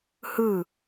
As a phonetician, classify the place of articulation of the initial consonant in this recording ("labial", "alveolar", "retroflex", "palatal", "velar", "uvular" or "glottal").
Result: glottal